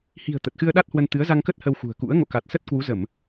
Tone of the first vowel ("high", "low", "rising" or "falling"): low